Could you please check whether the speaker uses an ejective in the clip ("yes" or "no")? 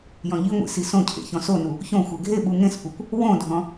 no